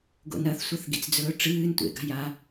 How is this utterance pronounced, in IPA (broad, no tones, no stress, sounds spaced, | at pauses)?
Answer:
ɡ o̰ n ɐ θ sʷ ɐ θ ɡ ḭ t͡s d͡z ɵː ʈ͡ʂ ɨː n tʷ ḛ ɡ a̤ j a